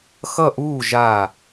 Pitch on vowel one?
falling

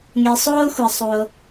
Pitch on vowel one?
low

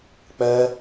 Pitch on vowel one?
high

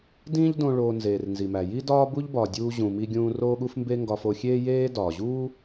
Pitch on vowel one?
high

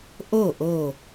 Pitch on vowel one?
falling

